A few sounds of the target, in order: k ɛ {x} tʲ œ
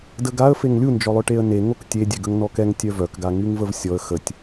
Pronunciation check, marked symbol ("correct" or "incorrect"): incorrect